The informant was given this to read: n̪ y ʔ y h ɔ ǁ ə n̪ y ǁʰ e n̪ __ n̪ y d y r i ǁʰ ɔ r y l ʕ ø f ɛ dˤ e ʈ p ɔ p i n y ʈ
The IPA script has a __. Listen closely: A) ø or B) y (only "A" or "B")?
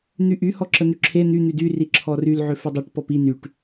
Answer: B